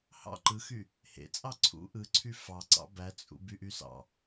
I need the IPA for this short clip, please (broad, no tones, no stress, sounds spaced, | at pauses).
h ɑ̰ ǃ ɯ x y | h ḛ t͡sʼ ɑ ǀʰ ṵ ʔ ɯ ǀʰ y f ɑ ǀ ɑ̰ b æ t͡sʼ ṵ b y ʔ y s ɑ̰